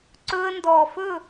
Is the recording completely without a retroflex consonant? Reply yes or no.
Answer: yes